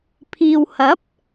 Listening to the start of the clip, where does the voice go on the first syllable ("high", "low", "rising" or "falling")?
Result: low